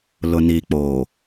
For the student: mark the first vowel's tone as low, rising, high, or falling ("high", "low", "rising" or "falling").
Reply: low